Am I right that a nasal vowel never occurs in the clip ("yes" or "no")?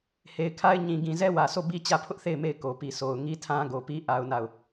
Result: no